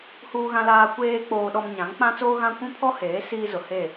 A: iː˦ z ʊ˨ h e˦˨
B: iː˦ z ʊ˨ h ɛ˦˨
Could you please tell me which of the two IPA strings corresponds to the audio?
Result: A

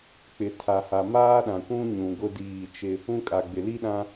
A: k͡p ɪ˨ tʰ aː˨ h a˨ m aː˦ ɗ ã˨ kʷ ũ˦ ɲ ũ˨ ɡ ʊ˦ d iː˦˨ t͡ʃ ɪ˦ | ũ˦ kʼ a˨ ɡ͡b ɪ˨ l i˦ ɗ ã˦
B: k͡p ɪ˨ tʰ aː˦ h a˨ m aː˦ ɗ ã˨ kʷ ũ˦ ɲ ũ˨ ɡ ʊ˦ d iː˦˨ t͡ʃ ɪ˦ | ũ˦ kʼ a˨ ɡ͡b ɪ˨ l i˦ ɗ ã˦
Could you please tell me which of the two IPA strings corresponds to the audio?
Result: A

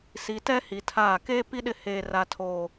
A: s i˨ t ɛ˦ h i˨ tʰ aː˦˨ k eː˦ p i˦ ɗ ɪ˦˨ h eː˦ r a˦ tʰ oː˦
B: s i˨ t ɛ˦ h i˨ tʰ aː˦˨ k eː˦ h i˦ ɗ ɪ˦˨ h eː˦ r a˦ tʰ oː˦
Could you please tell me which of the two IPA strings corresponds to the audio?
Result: A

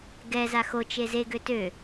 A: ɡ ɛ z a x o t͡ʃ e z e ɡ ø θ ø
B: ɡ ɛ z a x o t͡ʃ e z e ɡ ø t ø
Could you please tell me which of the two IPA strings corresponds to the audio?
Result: B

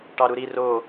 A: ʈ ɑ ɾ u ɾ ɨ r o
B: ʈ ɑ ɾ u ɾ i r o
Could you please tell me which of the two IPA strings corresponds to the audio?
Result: B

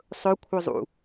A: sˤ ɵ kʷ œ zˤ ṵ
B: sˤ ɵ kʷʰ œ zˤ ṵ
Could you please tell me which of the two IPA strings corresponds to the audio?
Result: B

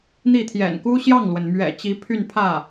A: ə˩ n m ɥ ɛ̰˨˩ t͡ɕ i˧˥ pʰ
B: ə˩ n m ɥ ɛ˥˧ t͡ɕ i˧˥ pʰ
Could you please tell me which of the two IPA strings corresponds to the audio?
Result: A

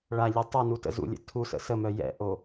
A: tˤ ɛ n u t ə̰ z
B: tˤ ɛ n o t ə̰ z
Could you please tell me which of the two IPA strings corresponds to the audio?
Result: A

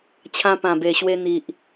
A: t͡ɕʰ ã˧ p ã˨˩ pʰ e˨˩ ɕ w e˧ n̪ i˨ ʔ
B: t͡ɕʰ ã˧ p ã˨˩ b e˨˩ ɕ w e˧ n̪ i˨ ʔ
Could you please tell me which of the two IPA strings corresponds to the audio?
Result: B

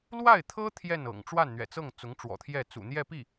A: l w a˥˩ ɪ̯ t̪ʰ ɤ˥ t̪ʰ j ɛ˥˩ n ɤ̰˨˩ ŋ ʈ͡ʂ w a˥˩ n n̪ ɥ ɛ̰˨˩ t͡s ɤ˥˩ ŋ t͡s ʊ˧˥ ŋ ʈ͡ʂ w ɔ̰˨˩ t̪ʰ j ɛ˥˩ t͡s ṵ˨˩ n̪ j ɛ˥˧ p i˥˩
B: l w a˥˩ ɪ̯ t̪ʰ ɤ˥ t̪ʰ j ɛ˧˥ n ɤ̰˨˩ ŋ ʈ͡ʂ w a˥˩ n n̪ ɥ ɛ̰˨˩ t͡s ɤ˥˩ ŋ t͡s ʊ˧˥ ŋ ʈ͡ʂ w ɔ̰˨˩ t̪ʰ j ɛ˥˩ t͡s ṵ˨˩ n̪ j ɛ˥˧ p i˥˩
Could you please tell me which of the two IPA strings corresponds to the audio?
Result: A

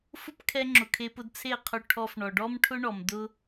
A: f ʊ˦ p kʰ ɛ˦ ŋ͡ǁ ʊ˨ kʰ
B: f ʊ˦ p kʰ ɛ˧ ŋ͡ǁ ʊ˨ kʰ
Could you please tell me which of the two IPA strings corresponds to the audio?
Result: B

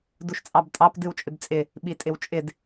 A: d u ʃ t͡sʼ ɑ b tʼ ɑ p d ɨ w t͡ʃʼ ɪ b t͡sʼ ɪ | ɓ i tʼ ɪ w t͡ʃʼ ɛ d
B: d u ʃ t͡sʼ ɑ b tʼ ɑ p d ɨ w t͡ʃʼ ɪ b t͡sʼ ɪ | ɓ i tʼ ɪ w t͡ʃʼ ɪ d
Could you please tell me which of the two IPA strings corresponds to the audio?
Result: B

